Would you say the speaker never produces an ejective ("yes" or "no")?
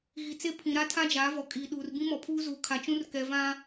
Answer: no